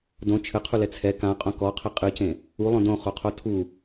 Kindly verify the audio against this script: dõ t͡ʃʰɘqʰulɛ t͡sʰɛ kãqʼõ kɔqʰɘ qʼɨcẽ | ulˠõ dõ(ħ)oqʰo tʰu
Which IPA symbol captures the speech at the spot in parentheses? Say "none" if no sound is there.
χ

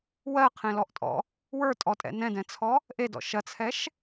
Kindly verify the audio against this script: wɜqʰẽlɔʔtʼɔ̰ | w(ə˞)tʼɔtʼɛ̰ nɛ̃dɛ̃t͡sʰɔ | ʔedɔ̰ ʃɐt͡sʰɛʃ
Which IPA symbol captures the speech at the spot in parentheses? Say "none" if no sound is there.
ə˞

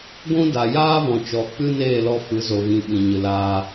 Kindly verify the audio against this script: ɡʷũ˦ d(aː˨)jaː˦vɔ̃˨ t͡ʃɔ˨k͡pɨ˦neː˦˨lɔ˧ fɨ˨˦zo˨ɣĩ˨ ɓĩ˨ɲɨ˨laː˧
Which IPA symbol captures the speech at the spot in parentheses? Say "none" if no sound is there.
a˨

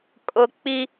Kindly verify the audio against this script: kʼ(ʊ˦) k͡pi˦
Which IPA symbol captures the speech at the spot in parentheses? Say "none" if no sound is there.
ʊ˦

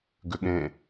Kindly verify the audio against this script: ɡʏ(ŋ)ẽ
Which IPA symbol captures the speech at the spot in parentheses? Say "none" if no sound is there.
ɠ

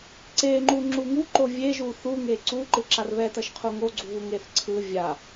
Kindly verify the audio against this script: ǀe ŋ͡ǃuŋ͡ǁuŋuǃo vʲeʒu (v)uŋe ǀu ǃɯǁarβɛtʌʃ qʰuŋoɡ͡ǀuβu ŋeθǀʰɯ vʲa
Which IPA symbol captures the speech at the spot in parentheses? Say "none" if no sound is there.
θ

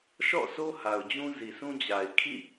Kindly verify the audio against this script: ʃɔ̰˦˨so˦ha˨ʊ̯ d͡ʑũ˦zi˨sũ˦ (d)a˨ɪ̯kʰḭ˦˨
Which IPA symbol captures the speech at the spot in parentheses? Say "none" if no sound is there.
d͡ʑ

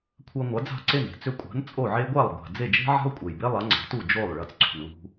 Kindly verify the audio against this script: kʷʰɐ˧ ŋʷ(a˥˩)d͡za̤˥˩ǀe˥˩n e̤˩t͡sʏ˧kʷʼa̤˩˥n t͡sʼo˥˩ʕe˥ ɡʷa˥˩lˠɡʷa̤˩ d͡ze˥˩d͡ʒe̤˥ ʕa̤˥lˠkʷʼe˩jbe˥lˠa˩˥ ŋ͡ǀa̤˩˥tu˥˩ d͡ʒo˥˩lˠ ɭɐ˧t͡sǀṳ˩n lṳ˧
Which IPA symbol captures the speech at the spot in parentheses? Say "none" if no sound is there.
a˩˥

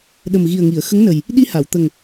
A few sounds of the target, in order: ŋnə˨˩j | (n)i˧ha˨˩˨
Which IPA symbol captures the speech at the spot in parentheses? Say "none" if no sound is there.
ɗ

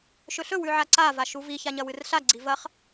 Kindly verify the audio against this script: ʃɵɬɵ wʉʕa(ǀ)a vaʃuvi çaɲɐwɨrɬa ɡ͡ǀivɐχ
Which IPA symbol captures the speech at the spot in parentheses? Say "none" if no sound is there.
ǀ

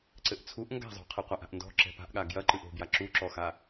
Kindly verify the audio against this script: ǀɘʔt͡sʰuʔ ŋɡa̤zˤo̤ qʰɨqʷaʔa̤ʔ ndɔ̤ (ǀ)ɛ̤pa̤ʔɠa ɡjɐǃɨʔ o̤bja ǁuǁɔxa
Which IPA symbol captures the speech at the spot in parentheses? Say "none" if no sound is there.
ǁ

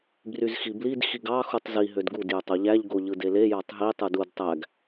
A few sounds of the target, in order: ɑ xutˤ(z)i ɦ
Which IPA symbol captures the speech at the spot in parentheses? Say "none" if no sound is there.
z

